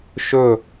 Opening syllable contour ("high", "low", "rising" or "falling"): falling